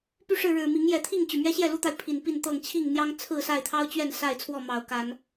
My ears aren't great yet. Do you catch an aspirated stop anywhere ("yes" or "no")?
yes